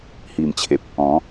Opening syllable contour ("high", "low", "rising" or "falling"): low